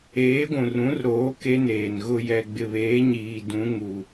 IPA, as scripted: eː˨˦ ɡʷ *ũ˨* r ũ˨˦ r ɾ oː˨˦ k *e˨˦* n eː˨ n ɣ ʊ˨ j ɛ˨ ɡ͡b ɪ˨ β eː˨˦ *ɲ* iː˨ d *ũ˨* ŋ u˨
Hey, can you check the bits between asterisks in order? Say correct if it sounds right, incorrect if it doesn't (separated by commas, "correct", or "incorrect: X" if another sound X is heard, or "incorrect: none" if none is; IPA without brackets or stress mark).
correct, incorrect: e˦, correct, incorrect: ũ˨˦